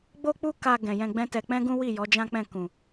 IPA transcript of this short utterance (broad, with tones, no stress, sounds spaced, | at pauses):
ɡ͡b o˦ k͡p u˦ k a˧ ɡ ɛ̃˨ j ɛ̃˧ ɡ͡b ɛ̃˦ t ɛ˧ k͡p ɛ̃˦ ɡ ũ˦ w i˦˨ j ɔ˨˦ d͡ʒ ã˦ k͡p ɛ̃˦˨ k ũ˨